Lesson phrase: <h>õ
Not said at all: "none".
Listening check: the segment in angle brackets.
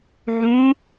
ʕ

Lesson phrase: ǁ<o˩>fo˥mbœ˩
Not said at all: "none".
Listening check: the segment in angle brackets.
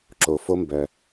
o˩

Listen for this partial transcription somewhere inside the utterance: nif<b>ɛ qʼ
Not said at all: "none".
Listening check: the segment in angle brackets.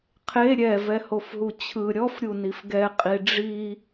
ɡ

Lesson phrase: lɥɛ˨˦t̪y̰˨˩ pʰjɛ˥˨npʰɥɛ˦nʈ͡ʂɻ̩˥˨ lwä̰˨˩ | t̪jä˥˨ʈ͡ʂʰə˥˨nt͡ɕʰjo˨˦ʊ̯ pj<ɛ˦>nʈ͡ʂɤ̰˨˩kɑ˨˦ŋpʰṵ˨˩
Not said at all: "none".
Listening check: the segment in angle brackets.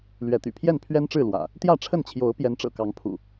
ɛ˨˦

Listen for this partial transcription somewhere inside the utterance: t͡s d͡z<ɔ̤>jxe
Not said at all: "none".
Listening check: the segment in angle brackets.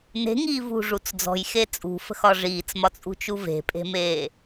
ɔ̤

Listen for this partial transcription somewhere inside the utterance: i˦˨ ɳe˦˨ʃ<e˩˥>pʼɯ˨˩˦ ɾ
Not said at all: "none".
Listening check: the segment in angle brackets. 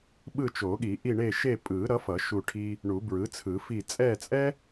e˦˨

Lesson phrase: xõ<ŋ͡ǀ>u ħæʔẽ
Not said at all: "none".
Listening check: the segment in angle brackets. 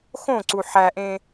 ǀ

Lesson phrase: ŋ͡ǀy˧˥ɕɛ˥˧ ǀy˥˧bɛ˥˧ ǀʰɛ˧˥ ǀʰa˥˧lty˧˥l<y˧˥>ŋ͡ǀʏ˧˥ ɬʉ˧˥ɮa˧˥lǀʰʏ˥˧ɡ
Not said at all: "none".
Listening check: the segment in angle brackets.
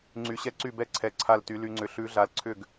y˧˥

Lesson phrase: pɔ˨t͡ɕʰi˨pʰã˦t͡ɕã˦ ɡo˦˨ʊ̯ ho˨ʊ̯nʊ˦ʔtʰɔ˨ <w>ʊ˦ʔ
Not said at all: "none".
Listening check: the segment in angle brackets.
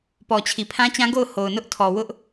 w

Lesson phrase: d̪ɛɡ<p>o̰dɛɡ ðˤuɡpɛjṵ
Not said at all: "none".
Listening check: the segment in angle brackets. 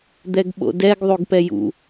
ɓ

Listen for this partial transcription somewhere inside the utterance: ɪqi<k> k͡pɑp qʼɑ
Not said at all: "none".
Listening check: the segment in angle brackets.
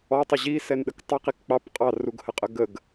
k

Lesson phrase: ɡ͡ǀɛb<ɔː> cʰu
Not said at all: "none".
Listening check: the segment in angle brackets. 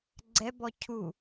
ɔ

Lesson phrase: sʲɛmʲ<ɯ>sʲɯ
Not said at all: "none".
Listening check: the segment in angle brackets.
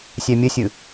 ə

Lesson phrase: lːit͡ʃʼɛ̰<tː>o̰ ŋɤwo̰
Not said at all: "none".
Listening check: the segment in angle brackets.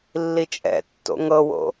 tː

